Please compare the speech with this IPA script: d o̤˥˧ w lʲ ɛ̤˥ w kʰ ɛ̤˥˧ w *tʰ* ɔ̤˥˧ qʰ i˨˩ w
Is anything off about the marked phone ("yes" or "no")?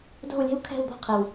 yes